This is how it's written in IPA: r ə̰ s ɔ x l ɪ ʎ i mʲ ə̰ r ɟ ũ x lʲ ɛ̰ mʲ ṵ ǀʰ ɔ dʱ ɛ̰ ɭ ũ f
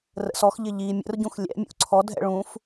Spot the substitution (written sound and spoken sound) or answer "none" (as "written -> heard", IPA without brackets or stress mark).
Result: l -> ʎ